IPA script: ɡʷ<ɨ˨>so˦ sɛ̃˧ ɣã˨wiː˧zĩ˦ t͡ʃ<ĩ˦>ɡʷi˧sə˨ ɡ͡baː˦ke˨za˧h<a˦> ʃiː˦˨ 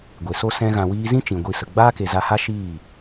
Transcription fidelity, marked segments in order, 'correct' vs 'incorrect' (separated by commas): incorrect, incorrect, correct